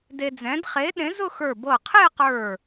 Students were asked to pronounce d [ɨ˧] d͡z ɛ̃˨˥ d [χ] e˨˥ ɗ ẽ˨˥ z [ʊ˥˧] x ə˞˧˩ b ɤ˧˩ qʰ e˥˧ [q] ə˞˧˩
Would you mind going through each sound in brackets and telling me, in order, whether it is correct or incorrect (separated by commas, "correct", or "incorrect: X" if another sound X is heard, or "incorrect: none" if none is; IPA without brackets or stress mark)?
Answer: incorrect: e˧, correct, correct, correct